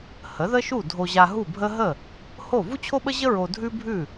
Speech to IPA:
h ə˩˥ ð ə˥ ʃ u˥˩ dʱ o˧ ʑ a˧ ɦ u˥˩ bʱ ə˥ ɦ ə˥˩ | h o˥˩ v u˥ t͡ɕʰ o˥ ɓ ə˥ ʑ ə˥ ɹ o˧ dʱ ʉ˥ bʱ ʉ˥˩

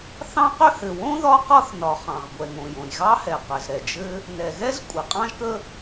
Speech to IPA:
θ ɑ̃˥ q ʏ˥ h ɘ˩ w õ˥ ð ɒ˥ q ɒ˥ θ n ɒ˩ χ ɑ̃˩ ʁ ɡʷ ɛ˩ ŋ õ˩ j õ˩ j ɣ ɑ˥ h ɛ˩ q ɘ˩ z ɾ ɛ˩ d͡ʒ ɘ˥ | n ɛ˩ ɣ ɛ˥ z kʷʼ ɘ˩ qʼ ɑ̃˥ ʒ k ə˥

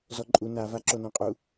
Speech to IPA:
z ɔ ǃʼ u n a v a ǁ o n õ qʼ u

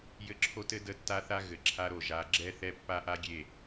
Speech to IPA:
j ɘ˦ ǁʰ o˦ t ɘ˦ d ə˦ tː a˦ θ a˦ ɣ ɘ˨ ǁʰ a˦ ɾ o˨ ʒ a˨˦ ɡ͡ǁ ɛ˦ θ ɛ˦ pː a˦ ʔ a˦ ɡʲ e˦˨

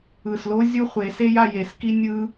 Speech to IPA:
ɯ˨ s l o˦ zʲ u˦ χʷ e˨˦ s e˦ j a˧ j e˨˦ s k i˦ nʲ ɯ˦

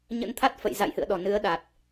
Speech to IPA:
ɲ ə̰˧˥ n t̪ʰ a˦˥ t̚ f ə̰˧˨ j z a̰˧˨ j h ɨ̰˧˨ ə̯ ɗ ɔ˧˩ n ɨ˨˦ ə̯ ɗ a˨˩ t̚

